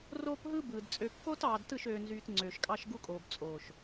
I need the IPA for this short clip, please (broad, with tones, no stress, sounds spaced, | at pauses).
r oː˦ p ɦ ɯ˦ b ɯː˨ d t͡sʼ ø˨ kː oː˦ t ɑː˨ d t ɯ˦˨ ʃ øː˨ n z yː˨ t ŋ͡ǀ øː˨ ʃ kʼ ɑ˦ ʃ ɡ u˦ kʼ oː˨ b t͡sʼ oː˨ ʃ